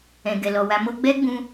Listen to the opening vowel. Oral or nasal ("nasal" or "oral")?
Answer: nasal